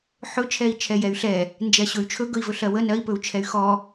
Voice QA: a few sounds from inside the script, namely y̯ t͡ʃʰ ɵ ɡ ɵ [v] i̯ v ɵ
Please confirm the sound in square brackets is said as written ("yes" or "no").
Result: no